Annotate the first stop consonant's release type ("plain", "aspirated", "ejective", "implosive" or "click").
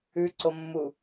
click